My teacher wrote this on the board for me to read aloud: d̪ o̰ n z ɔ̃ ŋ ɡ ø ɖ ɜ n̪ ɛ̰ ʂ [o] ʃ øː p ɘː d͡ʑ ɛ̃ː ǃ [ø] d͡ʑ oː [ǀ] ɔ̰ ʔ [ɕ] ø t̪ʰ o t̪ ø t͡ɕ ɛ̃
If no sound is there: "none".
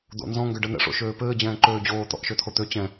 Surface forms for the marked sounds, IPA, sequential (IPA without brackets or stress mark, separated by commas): o̰, øː, t̪, ʃ